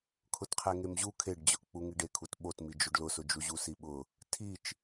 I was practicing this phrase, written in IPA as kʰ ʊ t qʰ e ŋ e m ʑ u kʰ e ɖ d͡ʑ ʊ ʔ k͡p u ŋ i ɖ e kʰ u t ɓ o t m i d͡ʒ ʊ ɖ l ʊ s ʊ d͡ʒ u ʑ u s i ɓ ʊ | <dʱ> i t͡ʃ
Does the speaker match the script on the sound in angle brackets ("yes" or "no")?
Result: no